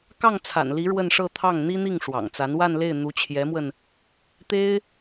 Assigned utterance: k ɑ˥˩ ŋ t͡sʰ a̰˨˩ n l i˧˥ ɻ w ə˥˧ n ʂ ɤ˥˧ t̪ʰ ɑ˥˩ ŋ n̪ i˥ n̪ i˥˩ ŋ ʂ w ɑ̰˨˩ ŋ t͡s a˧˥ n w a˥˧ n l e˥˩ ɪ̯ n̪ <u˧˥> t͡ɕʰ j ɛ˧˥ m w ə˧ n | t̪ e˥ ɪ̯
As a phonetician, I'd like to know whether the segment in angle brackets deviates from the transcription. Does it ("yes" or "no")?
no